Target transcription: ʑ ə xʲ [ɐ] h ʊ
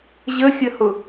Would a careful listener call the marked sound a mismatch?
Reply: yes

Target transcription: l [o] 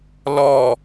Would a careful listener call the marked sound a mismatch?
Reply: yes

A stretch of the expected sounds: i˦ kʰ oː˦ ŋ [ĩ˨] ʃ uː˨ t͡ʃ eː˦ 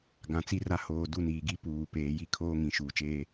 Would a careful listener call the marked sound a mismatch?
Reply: no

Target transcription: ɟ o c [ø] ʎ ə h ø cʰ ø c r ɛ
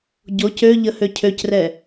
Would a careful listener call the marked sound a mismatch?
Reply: no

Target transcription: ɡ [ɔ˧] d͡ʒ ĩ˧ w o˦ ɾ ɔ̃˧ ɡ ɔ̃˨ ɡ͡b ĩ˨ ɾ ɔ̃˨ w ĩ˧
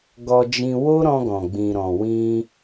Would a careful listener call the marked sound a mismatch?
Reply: no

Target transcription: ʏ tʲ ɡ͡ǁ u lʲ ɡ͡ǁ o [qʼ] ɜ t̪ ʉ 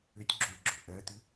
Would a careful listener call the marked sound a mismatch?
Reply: yes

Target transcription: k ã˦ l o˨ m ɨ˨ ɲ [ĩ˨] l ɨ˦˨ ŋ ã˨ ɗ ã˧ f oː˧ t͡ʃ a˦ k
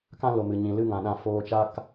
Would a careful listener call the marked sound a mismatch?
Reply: no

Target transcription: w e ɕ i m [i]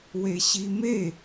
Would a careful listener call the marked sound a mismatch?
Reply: yes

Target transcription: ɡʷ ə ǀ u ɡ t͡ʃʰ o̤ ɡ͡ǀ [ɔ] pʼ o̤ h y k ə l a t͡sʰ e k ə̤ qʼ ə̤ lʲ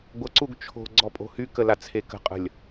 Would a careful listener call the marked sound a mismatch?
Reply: no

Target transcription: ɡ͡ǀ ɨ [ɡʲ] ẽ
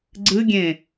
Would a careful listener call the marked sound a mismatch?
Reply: no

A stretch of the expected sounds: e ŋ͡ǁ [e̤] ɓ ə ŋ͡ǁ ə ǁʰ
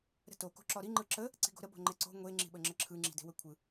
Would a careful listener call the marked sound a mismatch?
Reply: yes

